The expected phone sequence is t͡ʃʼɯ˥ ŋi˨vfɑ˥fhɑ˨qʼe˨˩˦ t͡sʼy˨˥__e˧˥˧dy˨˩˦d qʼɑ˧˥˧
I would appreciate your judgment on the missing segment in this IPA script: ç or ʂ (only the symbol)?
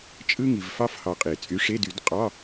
ʂ